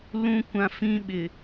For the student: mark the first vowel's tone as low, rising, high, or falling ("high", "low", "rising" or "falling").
high